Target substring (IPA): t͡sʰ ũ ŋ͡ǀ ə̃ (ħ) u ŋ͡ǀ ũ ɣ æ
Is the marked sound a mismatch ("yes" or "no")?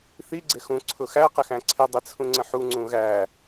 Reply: no